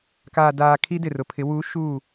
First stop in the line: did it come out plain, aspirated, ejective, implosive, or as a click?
plain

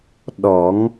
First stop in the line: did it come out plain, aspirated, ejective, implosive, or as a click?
implosive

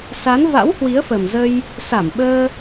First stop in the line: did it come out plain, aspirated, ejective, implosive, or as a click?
implosive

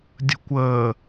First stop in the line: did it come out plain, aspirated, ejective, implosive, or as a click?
plain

